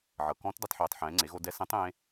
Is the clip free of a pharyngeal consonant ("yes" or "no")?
no